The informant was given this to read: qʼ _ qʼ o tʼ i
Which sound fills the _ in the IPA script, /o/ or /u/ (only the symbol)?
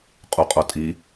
u